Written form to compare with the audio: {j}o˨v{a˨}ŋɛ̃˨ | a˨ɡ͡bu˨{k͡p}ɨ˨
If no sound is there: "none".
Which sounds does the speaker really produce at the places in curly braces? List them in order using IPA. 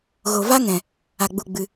ɣ, a˦, ɡ͡b

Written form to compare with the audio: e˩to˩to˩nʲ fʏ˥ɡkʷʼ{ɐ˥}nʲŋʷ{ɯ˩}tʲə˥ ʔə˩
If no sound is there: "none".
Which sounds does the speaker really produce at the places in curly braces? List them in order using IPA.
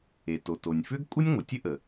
ɐ˥, ə˩

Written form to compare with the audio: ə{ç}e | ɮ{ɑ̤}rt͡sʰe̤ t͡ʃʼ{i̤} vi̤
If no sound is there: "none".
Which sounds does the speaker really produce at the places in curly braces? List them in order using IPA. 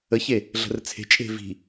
ç, ə̤, e̤

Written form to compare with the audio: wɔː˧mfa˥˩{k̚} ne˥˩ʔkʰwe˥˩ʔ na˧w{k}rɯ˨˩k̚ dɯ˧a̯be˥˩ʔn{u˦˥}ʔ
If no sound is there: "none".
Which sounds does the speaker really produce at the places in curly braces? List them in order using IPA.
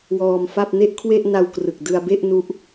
p̚, k, u˦˥

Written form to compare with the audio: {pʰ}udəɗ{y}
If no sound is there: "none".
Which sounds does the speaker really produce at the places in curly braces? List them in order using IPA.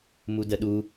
m, u

